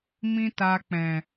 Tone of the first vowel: high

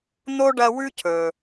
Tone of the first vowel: high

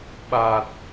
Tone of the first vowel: low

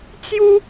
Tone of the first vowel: high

